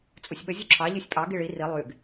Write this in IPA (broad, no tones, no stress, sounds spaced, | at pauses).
t͡sʼ u sʲ ɓ ə zʲ u ǁʰ ɑ ʎ y sʲ pʼ ɑ ɡ i ɭ i r i lˠ y ɡ